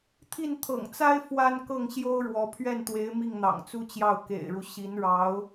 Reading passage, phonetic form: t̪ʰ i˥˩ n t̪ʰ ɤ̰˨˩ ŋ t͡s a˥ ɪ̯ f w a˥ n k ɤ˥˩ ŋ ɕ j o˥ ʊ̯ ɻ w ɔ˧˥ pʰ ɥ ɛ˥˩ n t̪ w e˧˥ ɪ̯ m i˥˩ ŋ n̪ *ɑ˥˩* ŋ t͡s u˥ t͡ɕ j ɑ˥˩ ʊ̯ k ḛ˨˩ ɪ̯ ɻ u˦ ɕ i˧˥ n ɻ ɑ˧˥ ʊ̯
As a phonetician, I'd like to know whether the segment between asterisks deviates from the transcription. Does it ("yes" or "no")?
yes